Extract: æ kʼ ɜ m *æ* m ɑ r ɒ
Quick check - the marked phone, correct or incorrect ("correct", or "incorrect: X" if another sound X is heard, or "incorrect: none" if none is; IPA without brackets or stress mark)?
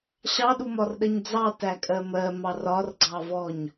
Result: incorrect: ɜ